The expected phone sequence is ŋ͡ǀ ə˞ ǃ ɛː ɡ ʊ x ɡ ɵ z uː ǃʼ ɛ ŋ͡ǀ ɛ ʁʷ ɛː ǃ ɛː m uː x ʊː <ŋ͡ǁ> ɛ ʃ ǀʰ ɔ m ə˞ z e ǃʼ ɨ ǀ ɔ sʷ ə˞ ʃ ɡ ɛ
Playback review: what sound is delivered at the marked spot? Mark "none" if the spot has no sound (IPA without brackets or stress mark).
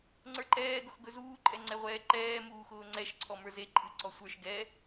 ŋ͡ǀ